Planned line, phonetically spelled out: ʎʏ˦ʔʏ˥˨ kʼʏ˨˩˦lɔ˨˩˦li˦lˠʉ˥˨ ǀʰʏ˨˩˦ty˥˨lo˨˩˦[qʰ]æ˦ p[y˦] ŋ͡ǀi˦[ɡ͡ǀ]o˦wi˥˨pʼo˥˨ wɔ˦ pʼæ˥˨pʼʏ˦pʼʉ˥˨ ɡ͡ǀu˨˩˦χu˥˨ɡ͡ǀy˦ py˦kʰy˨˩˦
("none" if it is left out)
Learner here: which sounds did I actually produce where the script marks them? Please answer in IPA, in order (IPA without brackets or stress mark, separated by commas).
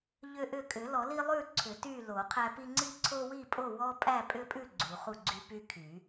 qʰ, i˦, ǀʰ